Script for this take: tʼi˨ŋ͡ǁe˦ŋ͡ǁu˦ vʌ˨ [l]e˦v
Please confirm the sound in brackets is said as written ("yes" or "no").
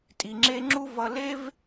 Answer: yes